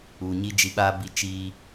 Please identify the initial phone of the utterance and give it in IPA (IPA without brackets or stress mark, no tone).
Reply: u